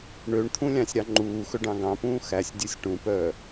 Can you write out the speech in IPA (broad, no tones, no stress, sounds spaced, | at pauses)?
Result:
ɳ ø ɳ t̪ʰ ũ lʲ ɑ̃ sʲ ɾ ɑ ŋ͡ǃ uː x ɵ ɖ ɑ̃ ɡ ɑ̃ p ũː x æ sʲ dʲ ɵ sʲ ʈ ũ p œː